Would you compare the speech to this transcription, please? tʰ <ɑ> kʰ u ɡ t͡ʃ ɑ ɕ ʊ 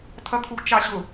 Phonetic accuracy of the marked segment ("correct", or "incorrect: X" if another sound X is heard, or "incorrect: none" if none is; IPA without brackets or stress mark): incorrect: ʌ